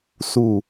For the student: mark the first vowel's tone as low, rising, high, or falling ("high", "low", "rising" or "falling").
low